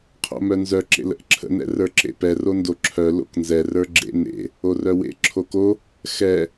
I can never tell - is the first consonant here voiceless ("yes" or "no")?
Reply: yes